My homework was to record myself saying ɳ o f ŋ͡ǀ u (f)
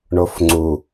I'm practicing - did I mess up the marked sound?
yes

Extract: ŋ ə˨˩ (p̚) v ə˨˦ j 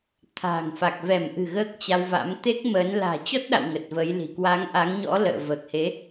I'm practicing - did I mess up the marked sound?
yes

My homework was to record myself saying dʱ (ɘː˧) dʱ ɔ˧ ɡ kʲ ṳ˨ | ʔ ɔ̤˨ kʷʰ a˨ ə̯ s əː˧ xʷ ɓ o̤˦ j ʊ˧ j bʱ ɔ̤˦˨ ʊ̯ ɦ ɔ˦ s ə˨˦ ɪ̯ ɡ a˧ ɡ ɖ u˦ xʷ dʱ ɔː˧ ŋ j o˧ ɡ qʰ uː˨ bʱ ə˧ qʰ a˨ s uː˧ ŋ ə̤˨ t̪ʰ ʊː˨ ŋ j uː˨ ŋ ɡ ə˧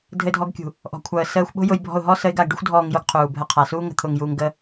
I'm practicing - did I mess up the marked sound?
yes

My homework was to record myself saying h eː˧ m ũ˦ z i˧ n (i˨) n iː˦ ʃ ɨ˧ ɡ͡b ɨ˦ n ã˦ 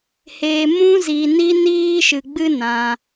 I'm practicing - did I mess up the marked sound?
yes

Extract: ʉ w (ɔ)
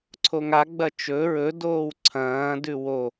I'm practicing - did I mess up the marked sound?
yes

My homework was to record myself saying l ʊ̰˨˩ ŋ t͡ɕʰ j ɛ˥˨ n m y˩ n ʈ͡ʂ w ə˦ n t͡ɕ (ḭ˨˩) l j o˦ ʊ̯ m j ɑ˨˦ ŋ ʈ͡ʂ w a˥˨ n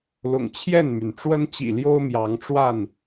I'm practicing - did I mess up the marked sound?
no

